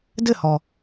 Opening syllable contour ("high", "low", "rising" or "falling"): falling